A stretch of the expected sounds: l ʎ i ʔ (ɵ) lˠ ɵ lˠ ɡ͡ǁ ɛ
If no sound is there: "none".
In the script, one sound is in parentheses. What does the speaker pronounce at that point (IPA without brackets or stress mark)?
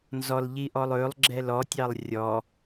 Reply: ɔ